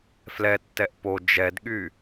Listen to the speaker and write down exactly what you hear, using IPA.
f l ɛ tː ɛ ʔ p o d͡ʒ ɛ d ɠ y

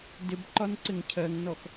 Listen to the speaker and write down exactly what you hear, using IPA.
d ɪ b ǃ ɒ n ǀ ɪ ŋ cʰ ɜ ŋ n ɔ x

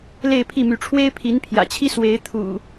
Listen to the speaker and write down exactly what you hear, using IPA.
l e˥˨ ɪ̯ pʰ i˥˨ m y˨˦ ʈ͡ʂʰ w e˦ ɪ̯ pʰ i˨˦ n pʰ j ä̰˨˩ t͡ɕʰ i˦ s w e˨˦ ɪ̯ t̪ʰ ṵ˨˩

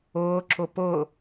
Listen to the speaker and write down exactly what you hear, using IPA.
ʊː ǁ ʊ p ʊ

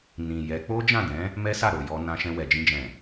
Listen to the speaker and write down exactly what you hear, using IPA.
n ĩ˨ j ɛ˨˦ k͡p o˦ d͡ʒ ã˦˨ d ɛ̃˨˦ | m ɛ˦ s a˦˨ ɾ o˨ j ɔ˧ n ã˧ ʃ ɛ̃˧ w ɛ˨ d͡ʒ ĩ˧ d͡ʒ ɛ̃˨

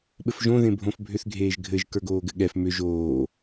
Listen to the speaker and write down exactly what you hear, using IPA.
ɓ ɘ f ʒ õ ð ẽ bʱ õ f bʱ ʏ θ ɡʱ eː ʒ ɡʱ ɘ ʒ k ə˞ ɡ oː ɡ ɘ ɠ ɛ f m ʏ ʒ oː

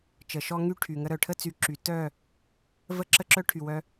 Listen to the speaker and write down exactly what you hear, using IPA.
t͡ʃ ə˨ ʃ ɔ˦ ŋ y˦ ʈʰ y˨ ŋ ə˧ ɾ œ˨ ʈʰ ə˦ t͡s y˨˦ ǁ y˨ t œ˦˨ | v ə˦ ǁ ə˦ ǁ œ˦ ʈʰ y˨ w œ˧

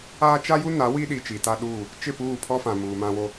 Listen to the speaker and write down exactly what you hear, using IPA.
aː˦ t͡ʃ a˦ j u˦ n a˨˦ w i˦ ɗ i˨ t͡ʃ i˨ t a˦ ɗ uː˦˨ | t͡ʃ ɪ˦˨ p uː˦˨ pʰ ɔ˦ f ã˨ m uː˨ m ã˦ w o˦

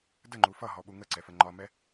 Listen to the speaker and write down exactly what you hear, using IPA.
d ə ŋ͡ǃ u f ʌ ɦ ɔ ɓ u ŋ ə ǀ ɛ f ə ŋ͡ǃ ɒ m ɛ

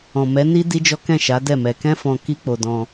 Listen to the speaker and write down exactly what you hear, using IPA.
ɔ̃˨ m ɛ˨˦ n i˦ d i˦ d͡ʒ ɔ˦ k ɛ̃˦˨ ʃ a˨˦ d ɛ˦˨ m ɛ˧ k ɛ̃˦ f ɔ̃˧ k i˦ k͡p o˧ d ɔ̃˧

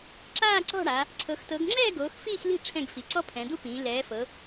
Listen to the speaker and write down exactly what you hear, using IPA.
ǁ aː˥˨ ǀ ɔ̤˥˨ ɽ a˩˧ | ǀʰ ɤ˩˧ x t ɤ˩˧ ɡ ŋ͡ǁ ɛː˥˨ ɡ oː˩˧ x f iː˥˨ x l i̤˥˨ ʈ͡ʂʰ ɛ̃˥˨ ɡ f i˩˧ ǀ ɔ˦ pʰ ɛ̃˩˧ d̪ u˦ p ĩː˩˧ l ɛː˩˧ f ɤ˩˧

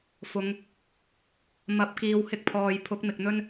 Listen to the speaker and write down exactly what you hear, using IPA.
f ʊ˨˧ ŋ | m ɐ˨˥ p̚ k iː˨˧ w h ɪ˧ k̚ pʰ ɔː˨ j pʰ ʊ˨˥ k̚ m ɪ˨ k̚ n̪ ɵ˥ n

